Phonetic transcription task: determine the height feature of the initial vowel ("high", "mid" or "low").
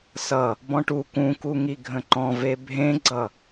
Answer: mid